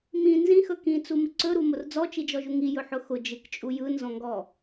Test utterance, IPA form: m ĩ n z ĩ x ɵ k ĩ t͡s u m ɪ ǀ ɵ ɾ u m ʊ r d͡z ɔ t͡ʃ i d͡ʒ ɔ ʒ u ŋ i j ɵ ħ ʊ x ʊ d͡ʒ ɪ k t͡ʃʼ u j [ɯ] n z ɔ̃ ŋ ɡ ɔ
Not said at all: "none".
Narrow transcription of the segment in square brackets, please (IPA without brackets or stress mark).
ɯ